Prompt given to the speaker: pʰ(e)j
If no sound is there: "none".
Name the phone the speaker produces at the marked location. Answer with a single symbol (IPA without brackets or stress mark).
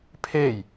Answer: e